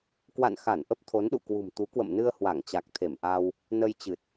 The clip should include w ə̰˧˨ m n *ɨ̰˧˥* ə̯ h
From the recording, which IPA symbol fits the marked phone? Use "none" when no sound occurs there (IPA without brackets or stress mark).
ɨ˧